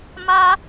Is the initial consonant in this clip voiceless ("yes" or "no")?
no